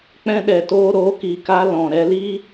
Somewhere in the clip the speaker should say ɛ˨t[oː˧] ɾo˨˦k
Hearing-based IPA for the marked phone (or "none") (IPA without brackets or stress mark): oː˧